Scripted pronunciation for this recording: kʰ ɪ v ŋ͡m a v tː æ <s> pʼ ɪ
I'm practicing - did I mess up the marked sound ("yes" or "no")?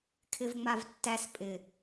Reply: no